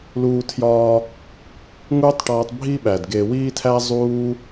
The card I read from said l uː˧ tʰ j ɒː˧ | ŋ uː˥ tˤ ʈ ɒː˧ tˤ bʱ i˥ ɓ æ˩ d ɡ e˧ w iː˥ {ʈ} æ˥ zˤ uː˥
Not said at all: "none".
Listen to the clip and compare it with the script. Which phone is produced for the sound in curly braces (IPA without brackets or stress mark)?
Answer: tʰ